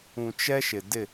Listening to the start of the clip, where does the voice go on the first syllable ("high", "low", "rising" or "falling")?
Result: low